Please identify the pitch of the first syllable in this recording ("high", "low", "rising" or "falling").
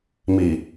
low